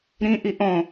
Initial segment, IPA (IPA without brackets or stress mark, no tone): ɾ